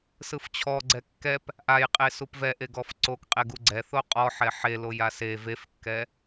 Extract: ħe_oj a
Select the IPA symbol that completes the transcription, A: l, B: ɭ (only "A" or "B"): A